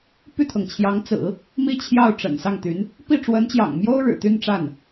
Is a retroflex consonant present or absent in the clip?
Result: present